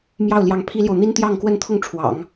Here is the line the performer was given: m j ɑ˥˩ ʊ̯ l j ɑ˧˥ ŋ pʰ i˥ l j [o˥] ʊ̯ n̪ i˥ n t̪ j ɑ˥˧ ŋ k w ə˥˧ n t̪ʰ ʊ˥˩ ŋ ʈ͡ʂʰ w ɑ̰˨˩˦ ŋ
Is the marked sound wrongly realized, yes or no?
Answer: yes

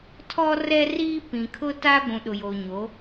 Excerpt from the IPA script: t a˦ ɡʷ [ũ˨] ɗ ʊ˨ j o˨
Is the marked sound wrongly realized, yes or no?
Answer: no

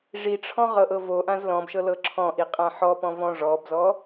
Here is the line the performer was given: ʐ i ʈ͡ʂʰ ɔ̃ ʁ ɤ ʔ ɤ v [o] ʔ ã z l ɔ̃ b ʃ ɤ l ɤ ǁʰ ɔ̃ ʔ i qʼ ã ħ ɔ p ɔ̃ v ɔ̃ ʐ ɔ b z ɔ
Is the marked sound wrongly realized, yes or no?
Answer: no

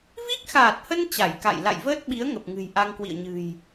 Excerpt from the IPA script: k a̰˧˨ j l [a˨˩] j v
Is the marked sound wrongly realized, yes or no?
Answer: yes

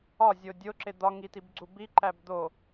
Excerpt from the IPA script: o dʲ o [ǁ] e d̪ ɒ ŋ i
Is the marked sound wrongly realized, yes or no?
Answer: no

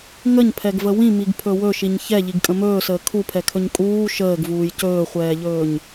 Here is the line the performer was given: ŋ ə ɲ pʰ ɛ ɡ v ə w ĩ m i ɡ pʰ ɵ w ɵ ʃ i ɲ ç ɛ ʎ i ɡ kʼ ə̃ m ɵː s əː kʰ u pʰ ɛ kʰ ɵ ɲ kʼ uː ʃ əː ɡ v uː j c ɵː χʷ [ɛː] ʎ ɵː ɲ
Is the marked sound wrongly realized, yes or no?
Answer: no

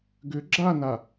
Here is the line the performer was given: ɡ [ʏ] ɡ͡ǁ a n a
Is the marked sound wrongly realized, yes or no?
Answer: no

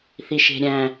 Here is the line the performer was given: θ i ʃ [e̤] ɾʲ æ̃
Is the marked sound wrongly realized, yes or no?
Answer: no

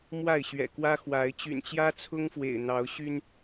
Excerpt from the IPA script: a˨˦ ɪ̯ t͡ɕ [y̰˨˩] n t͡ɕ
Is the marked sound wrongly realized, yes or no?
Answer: no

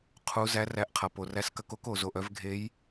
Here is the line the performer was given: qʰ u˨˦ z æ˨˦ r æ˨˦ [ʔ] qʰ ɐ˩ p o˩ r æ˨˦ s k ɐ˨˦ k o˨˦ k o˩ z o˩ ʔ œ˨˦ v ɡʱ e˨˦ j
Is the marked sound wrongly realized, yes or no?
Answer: no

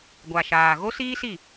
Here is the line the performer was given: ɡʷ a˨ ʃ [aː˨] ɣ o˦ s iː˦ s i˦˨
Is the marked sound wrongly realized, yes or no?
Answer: no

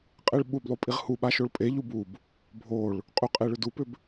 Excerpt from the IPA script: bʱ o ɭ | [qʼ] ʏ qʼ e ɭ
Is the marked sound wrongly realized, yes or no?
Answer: no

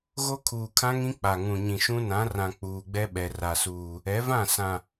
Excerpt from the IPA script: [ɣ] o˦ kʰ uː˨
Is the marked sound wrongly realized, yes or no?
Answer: no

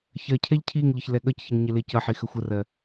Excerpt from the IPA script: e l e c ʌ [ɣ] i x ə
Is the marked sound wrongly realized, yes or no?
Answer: yes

